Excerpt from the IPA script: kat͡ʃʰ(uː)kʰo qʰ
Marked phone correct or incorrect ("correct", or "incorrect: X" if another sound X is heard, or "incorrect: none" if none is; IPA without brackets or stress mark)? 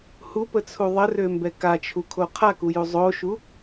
incorrect: u